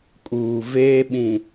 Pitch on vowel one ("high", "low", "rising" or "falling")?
low